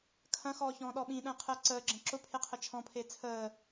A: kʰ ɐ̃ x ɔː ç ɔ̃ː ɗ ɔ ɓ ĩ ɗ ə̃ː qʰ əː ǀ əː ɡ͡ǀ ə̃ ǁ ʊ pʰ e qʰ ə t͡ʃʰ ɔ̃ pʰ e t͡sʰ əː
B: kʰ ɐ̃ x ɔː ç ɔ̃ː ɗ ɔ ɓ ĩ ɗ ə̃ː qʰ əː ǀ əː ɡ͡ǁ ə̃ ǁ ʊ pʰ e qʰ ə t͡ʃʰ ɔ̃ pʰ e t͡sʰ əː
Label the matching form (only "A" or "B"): B